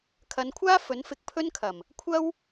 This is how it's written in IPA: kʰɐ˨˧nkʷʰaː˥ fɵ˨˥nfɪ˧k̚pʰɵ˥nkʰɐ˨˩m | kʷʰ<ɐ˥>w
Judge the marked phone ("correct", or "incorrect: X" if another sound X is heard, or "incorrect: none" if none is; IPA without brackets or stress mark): correct